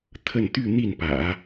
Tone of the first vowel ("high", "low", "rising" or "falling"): falling